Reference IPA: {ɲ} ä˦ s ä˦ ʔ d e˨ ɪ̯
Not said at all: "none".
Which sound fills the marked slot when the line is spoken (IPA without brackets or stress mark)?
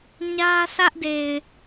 ɲ